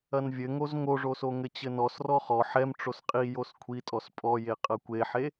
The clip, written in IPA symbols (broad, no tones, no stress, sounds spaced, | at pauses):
ɐ n vʲ ɘ ŋ o z ŋ o ʐ o s o ŋ ɘ t͡ɕ ɘ n ɔ s r ɔ χ ɔ ħ ɛ m ʈ͡ʂ o s qʼ i j o s kʷʰ i tʼ ɔ s pʼ ɔ j e qʼ ɐ kʷ e ħ e